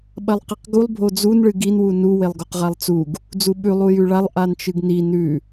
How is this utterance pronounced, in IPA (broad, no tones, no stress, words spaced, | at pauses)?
ɓɐlˠqiqɡulˠ bʱod͡zun ɭɨɡin wunu welˠɡoqʁalˠt͡suɡ | d͡zuɓʉ lˠujʉɭalˠ ʔant͡ʃɨɡni nʉ